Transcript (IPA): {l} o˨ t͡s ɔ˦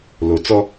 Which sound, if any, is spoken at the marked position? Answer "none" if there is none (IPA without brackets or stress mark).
l